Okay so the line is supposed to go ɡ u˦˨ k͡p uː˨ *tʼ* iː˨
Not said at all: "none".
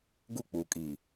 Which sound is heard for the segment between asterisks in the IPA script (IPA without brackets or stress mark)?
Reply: kʼ